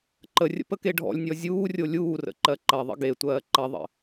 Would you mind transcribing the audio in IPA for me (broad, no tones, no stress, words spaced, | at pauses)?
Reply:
ǃərʲə̰p əkeɖʱɔ̰lʲnʲɔ zʲuːrʲo lʲuːrə̰ ǃɜǃɐðˤə̰ ɡetʷɜː ǃɐðˤə̰